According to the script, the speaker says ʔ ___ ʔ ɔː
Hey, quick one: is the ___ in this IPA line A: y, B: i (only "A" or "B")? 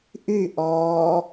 A